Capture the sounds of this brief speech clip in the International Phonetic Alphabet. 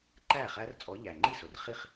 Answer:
ǃ æ˥˩ χ æ˦˥ r t͡sʼ ɔ˨˦ ʎ æ˨˩ ŋ͡ǃ i˥˩ s ʊ˨˩ r χ i˥˩ χ

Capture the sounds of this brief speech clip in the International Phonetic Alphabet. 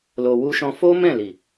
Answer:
l o˧ w u˦ ʃ ɔ̃˦ f o˦ m ɛ̃˦˨ l i˨

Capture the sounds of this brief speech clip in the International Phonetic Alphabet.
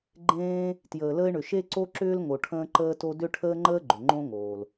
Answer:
ɡ͡ǃ ẽː˧ | t j əː˩ l əː˧ ɪ̯ ɳ ʏ˩ ʃ e˧ ǀ o˧ ǁ ʏː˧ l ŋ o˩ ʈʰ ə̃ː˧ ǃ əː˧ t o˧ d ʏ˧ ʈʰ əː˧ ŋ͡ǃ əː˧ ɡ͡ǃ ʏ˩ ŋ͡ǃ õ˧ ŋ oː˩ l

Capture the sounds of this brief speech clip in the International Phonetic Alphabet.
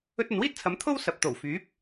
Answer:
ɵ˧ t̚ ɐ˨ n w iː˥ t̚ t͡sʰ ɐ˨˧ m t̪ʰ o˥ w s ɐ˨ p̚ t̪ o˨˩ w f yː˨˥ p̚

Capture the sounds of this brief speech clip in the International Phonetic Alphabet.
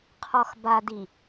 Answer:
qʰ ɔ x b a d i

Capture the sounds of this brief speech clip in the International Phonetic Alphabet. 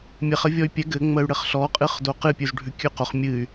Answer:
mʲ e χ ə vʲ ɔ y̯ pʲ ɛ ɡ ɘ ŋ͡m ə y̯ ɽ ɘ χ ɬ ɔ qʼ ɨ χ d o q ɨ pʲ ʉ z ɖʱ ʉ kʲ ʉ q o χ mʲ ɨ y̯

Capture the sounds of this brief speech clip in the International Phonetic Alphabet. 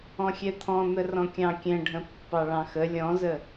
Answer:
ɔ̃ xʲ ɛ t̪ʰ ɔ̃ n̪ ə r ɔ̃ kʲ ɑ̃ kʲ ɛ̃ ɖʱ ə̃ pː ɑ ɭ ɑ̃ x ə lʲ ɔ̃ z ə

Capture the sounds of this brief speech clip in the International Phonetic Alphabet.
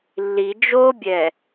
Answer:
lː i d͡ʒ o bʲ ɛ

